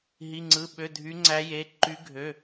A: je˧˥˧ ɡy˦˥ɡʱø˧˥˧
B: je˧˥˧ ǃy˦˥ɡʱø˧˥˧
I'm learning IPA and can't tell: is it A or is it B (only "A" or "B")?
B